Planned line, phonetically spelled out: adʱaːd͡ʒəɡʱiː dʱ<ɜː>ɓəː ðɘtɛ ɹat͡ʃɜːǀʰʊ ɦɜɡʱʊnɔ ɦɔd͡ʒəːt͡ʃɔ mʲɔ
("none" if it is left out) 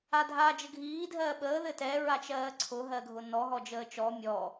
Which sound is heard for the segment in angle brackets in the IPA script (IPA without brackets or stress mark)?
ɜː